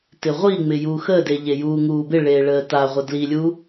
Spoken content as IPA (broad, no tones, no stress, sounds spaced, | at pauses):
t ɪ ʁʷ i ŋ͡m ɪ j uː x ə d e ʎ e j uː ŋ uː b ɪ ɭ eː ɭ əː t a ʁʷ ə d l i lʲ u